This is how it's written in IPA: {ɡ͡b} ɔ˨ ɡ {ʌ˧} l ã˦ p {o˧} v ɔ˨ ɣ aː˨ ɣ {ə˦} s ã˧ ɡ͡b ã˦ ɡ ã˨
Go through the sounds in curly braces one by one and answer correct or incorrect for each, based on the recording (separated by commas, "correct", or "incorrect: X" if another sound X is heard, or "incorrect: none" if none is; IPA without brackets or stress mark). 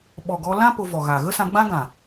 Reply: incorrect: ɓ, incorrect: ɔ˧, correct, correct